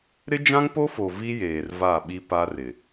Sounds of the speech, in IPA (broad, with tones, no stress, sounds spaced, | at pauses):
ɾ ɪ˦ d͡ʒ ã˦ ŋ p o˦ f o˨ v i˦ j eː˨ r v a˦˨ ɓ i˦ p a˦ r ɪ˨